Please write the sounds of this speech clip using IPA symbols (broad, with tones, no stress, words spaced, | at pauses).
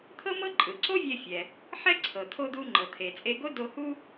t̪ʰɤ˥mɤ˥ ǃʼɯ˩ǀo˥vʲe˧ fʲɛ˩ | ħɛ˥ǀʰɤ˩ t̪ʰo˧d̪u˧ŋ͡ǃɤ˩t̪ʰe˩ t͡sʼe˧ɡo˥do˧hu˥